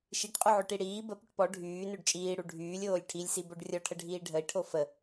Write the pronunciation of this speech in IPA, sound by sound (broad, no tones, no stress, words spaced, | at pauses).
ʃiʈqʼuʕøʈi ɽiː bə pyʈpɔ ɖʱyː nøɖt͡ʃʼiːɽu ɖʱyːlʲoːlʲ ʈʰilʲsi boɖrʲɔʈʰəɖʱiː ɖʱəi̯ʈʰo fə